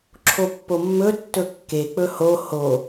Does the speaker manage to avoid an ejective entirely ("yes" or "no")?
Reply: yes